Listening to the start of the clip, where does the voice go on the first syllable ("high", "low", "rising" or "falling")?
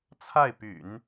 falling